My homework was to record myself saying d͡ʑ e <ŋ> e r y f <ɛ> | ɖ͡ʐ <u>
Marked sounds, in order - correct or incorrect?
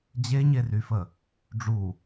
incorrect: ɲ, incorrect: ə, correct

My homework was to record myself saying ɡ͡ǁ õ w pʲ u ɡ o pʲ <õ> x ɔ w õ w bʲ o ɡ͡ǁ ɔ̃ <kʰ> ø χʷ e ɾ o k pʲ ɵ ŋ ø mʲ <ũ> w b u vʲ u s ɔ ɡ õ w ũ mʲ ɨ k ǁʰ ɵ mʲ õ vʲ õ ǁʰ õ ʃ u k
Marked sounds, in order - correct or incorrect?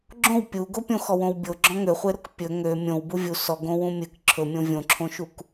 correct, incorrect: ŋ, incorrect: õ

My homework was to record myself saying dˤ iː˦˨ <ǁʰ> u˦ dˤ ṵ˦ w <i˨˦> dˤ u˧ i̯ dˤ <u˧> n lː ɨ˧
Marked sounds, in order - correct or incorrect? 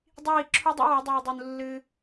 correct, correct, correct

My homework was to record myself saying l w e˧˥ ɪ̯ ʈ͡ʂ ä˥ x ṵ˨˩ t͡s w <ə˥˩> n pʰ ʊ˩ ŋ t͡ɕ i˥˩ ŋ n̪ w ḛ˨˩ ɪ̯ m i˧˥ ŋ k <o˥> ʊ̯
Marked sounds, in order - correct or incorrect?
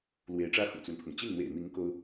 incorrect: ə˦, correct

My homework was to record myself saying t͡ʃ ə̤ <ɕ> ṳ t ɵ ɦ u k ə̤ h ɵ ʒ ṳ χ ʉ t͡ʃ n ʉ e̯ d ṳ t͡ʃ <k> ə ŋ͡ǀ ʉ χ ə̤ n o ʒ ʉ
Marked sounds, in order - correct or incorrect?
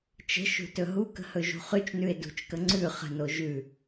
incorrect: ʃ, correct

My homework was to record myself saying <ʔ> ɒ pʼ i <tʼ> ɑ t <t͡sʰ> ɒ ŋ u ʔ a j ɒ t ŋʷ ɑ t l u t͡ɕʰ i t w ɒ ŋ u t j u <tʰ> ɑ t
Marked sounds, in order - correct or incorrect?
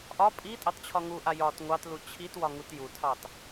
correct, correct, incorrect: t͡ɕʰ, correct

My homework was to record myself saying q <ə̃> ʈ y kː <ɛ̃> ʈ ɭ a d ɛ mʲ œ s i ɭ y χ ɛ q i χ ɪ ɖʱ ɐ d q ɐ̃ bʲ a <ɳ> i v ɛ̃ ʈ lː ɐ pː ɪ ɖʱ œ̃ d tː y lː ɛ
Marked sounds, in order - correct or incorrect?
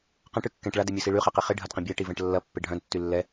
incorrect: ɐ̃, correct, incorrect: ʈ

